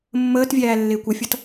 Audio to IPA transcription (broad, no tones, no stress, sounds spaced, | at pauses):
mː əː t vʲ æː lː ɪː kʷ ə fʲ ʌ t